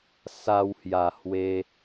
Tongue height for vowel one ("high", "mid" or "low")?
low